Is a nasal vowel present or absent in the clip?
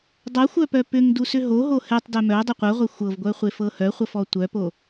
absent